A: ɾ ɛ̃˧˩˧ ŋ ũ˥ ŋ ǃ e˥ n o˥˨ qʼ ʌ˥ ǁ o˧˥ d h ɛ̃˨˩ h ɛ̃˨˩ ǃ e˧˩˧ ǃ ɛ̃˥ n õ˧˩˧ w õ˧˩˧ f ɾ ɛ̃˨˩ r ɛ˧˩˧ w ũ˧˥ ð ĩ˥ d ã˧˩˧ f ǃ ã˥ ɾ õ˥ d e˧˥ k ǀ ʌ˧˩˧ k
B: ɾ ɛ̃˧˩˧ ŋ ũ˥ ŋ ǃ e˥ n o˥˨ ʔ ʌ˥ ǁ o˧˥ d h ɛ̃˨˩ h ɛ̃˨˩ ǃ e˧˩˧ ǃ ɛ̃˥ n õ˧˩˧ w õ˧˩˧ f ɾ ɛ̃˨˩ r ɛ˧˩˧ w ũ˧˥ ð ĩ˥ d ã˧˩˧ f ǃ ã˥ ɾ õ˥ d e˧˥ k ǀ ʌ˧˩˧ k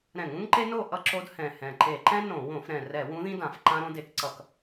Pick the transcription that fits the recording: B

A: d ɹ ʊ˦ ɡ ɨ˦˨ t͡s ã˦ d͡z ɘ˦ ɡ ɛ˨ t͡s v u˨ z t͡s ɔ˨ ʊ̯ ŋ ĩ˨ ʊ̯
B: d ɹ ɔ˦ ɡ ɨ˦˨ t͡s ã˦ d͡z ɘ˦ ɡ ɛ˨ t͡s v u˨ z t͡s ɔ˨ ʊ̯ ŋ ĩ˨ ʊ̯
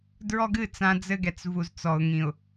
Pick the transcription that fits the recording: B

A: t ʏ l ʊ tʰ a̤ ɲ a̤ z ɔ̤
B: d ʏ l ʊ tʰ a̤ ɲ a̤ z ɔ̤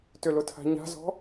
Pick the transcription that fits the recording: A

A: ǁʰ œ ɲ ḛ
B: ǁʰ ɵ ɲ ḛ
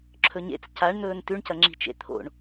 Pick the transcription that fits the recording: B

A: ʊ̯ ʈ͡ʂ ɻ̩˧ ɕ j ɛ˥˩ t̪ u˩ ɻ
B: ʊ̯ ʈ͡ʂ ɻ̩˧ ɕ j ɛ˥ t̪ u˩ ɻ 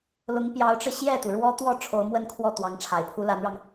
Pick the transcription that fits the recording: A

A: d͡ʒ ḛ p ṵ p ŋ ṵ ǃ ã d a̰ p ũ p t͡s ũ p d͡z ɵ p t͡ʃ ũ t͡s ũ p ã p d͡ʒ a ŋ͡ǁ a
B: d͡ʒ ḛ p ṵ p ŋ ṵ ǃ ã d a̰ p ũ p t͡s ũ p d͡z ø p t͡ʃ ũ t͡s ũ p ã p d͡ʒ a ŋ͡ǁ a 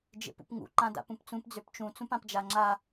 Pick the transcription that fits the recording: B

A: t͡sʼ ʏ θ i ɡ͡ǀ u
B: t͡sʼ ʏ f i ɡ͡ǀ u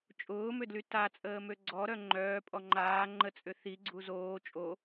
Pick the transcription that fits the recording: A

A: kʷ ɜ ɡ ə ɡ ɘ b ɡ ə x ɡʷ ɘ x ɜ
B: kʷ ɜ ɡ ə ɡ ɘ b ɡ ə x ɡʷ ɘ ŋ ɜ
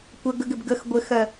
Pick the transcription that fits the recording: A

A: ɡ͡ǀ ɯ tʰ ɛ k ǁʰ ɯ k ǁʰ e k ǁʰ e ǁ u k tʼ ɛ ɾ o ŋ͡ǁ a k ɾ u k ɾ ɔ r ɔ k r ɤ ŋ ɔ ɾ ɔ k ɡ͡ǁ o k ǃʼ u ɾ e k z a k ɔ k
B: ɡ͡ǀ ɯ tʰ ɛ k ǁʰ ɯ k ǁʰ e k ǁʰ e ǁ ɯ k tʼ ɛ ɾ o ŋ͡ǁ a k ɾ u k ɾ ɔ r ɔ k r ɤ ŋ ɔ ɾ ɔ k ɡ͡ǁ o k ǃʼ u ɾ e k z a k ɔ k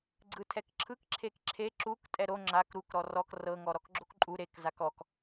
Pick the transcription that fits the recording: A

